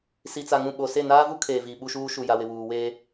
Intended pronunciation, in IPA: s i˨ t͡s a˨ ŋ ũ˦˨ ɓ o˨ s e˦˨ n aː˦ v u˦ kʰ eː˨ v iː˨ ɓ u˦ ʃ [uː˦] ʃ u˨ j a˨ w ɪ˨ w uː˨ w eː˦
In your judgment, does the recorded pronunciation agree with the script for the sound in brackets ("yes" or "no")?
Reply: yes